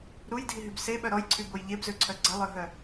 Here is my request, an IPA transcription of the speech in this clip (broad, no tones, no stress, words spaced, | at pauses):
ɾujdʱiɦyb seɓœ ɾɔjǀʰyboj ʎebzøǀʰœ ɡ͡ǀəlˠœɦœ